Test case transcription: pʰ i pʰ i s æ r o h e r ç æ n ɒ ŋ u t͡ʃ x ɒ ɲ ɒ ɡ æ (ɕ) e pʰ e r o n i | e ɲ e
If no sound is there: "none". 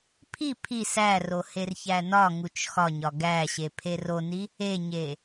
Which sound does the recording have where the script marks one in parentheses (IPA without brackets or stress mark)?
ɕ